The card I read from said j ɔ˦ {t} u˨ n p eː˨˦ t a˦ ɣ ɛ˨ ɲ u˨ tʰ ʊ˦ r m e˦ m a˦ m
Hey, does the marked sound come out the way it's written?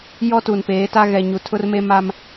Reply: yes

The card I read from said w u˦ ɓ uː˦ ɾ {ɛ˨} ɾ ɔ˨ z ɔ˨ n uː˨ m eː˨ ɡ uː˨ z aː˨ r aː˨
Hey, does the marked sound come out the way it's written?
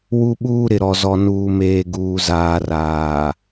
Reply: no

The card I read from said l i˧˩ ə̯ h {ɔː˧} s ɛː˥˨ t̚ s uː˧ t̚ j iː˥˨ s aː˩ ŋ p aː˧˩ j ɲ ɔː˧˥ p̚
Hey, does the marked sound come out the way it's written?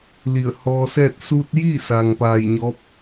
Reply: yes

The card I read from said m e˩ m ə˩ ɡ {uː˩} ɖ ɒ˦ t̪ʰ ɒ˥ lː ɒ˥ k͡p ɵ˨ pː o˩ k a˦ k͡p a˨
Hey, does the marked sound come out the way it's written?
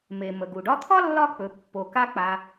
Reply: no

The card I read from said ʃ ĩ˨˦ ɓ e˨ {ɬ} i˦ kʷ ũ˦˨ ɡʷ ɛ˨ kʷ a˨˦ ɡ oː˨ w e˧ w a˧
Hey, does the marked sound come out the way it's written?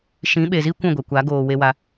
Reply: no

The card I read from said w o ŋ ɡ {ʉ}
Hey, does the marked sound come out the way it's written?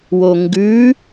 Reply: yes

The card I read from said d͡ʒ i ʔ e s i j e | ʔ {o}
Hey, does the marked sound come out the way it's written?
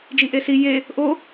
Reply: yes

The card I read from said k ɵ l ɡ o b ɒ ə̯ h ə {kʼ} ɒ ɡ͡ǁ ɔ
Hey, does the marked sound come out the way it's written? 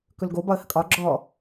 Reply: yes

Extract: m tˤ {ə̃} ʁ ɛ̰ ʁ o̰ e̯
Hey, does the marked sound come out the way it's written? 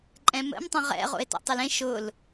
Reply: yes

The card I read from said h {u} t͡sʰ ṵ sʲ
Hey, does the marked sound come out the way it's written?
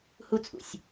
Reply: yes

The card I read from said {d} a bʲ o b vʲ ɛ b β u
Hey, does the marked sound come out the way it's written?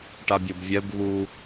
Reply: no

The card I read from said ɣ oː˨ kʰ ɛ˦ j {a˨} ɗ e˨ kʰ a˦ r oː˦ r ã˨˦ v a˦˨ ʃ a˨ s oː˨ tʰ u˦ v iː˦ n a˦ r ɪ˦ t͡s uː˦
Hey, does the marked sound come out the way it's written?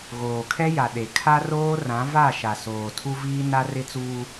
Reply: yes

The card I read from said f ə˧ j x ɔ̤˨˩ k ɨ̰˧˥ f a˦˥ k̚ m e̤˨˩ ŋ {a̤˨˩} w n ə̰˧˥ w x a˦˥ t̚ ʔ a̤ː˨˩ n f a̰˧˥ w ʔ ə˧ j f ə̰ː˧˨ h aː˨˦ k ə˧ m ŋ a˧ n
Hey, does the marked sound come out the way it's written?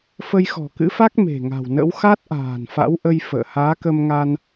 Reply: yes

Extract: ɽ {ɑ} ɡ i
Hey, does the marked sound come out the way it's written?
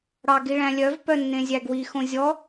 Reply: yes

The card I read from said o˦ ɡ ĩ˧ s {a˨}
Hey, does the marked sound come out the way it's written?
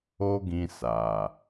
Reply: yes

